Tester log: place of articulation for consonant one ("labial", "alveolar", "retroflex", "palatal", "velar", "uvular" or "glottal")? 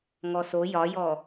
velar